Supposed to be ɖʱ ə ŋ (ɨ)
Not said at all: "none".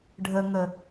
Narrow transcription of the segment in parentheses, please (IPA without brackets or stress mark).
ə